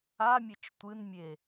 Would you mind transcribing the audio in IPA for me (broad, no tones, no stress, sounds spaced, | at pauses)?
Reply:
a mʲ ɘ t͡ʃ tʷ ɨ n mʲ e